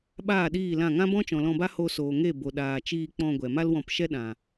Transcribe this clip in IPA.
ɓ aː˦˨ ɗ iː˦˨ l ã˦˨ ŋ ã˦ b ɔ̃˦ t͡ʃ ɔ̃˨ l ɔ̃˧ b a˦ h o˧ s oː˨ ŋ e˦˨ b o˧ ɗ aː˧ t͡ʃ iː˧ k͡p ɔ̃˧ ɡʷ ɛ˨ m a˦ l w ɔ̃˧ p ʃ ɛ˦ ɗ ã˨

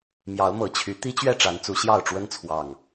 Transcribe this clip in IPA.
m j ɑ˨˦ ʊ̯ m ɤ˨˩ t͡ɕʰ y˨˦ t̪ i˦ t͡ɕ ɥ ɛ˥˨ ʈ͡ʂ a˨˦ n t͡s u˨˦ ɕ j ɑ˥˨ ʊ̯ ʈ͡ʂ w ə˦ n t͡sʰ w ɑ˨˩ ŋ

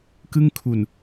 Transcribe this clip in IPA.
k ɯ˥˩ ŋ kʰ u˨˩ n

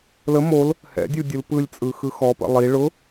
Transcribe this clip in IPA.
l ə m o l | h ɛ̰ dʲ u dʲ ɯ l p ɯ lʲ t͡sʼ ɯ x ɯ x ɔ p ə̰ lˠ i ɭ ʊ

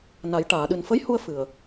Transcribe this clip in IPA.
n a˨˩˦ j ʈ aː˨˩˨ ɗ ɨ˨˩ n f ə˧˥ j h u˧ ə̯ f ɨ˨˩ ə̯

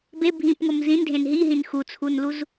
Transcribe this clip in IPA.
b e bʱ ĩ p ŋ o m z ĩ n dʱ ẽ n ɦ i ɦ ĩ n x u t͡sʰ u n l u z

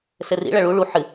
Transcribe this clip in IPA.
s ɘ r ḭ ɭ ɐ ɭ u ɭ u ħ ɨ

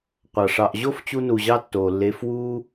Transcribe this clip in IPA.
qʷ ɑ˨ ʂ ɑ˨ ʔ ʑ o˦ f t͡ɕ u˧ n u˨ ʑ ɑ˦ tː oː˨ lː eː˧ f w uː˦

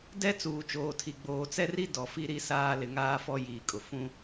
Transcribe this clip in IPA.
d ɛ˦ t͡s uː˨ t͡ʃ oː˨ tʰ i˨ ɡ͡b oː˨ t͡s ɛ˦ r i˦ d ɔ˨ f i˦ ɾ i˦ s aː˦ l ɪ˨ ŋ aː˦ f ɔ˦ j iː˨ kʼ ʊ˨ f ũ˦

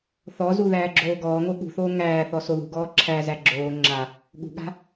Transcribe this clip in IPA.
θ ɔ z u ð æː ɡ͡ǁ oː ɡ ɔː ŋ o ɠ ṳ θ oː ŋ æː θ ɔ s o ð ṳ ɡ ɔː ǁʰ æ z æ ɡ͡ǁ oː ŋ͡ǁ a | ɠ ṳ ɠ a̤

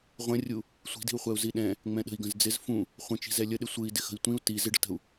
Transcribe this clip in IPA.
ʁʷ ə̃ rʲ u | sʷ i̤ d i̤ u̯ χʷ ɛ u̯ z i ɗ ɛ̃ | ŋ͡m ɛ̃ ɗ ə̤ i̯ ɡ ə̃ z d͡z ɪ z f ũ | χʷ ə̃ t͡ʃ i̤ z ɛ lʲ ə ɗ ɪ sʷ ɯ i̯ d ɪ x ə̤ i̯ tʷ ĩ u̯ t i z ɪ ɖ ə̤ t ə̤ u̯

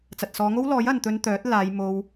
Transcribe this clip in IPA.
t͡s ɐ˨ t̚ s ɔː˨˧ ŋ o˥ w l ɔː˨˥ j ɐ˨ n t̪ ɵ˧ n t̪ œː˨˥ t̚ l aː˨˧ j m o˧ w

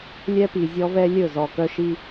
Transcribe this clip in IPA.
lʲ ɛ˦ p i˨ zʲ ɔ˦ v ɛ˦ lʲ ɵ˦˨ z ɔ˨ k œ˦ ʃ i˦

